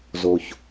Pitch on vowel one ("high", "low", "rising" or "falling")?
low